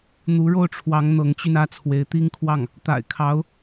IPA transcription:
n̪u˧˥ɻo˥˩ʊ̯ʈ͡ʂʰwɑ˧˥ŋ n̪ɤ˧˥ŋt͡ɕy˧nä˥˩ t͡sʰwe˧˥ɪ̯t̪i˥ŋkʰwɑ˥˩ŋ | t̪a̰˨˩ɪ̯kʰɑ˧˥ʊ̯

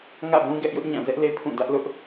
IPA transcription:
ŋä̰˦˨bũ˦ɡɛ˦ʔjʊ˦ʔ ɲã˦˨ zɛ˦ʔle˦ pʰũ˦˨ dä˦ʔlʊ˦ʔ

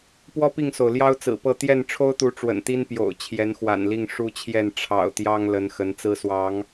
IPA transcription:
pwɔ˦pi˥˨ŋso˩ʊ̯ljɑ˦ʊ̯ t͡sɹ̩˨˩pɤ˥˨ t̪jɛ˥˨n ʈ͡ʂʰo˦ʊ̯t̪u˨˦ ʈ͡ʂwə̰˨˩nt̪i˦n pjo̰˨˩ʊ̯ t͡ɕʰjɛ˨˦nxwa̰˨˩nli˥˨ŋ ʂu˦t͡ɕʰjɛ˥˨n ʈ͡ʂʰɑ̰˨˩ʊ̯t̪jɑ˦ŋ lə˨˦n xə˨˦nt͡sɹ̩˦swɑ˨˦ŋ

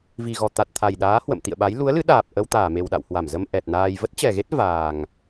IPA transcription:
vi˨˩ɣɔ˨˩ t̪a˨˩t̚t̪ʰa˨˩jɗaː˨˦ hwə̰˧˨m t̪ḭ˧˨ə̯ɓa˨˦j lu˨˦ə̯lɨ˨˦ɗaː˨˩p̚ ʔə˧wt̪aː˧˩me˨˩wɗa̰˧˨w hwa˧˩mzə˧m ʔɛ˨˩t̚naː˧j və˦˥t̚t͡ɕɛ˨˩ɣe˦˥t̚ vaː˨˩ŋ

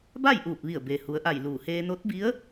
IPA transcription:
ba˥˨jʔuː˧˩p̚ʋi˧˩ə̯ be˩hu˩˧ə̯ʔa˧˩jluː˧˩ heː˧no˧˥t̚bi˧˥ə̯

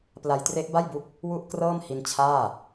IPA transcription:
pla˧jtre˦˥ʔba˥˩jbu˦˥k̚ | wu˥˩ʔkrɤː˥˩m hi˧n t͡ɕʰaː˥˩

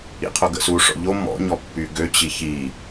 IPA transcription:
ḭqʰoɡə̰su ʂɔ̰ʎo mɔ̰ɲɔ pːyɡø t͡ɕiçi

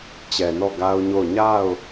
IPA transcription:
t͡ɕɛ˨nɔ˦˨ ɡa˦ʊ̯ɲo˦˨ʊ̯ ɲa˦˨ʊ̯

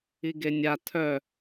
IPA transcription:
iɡenʲa tʰœ

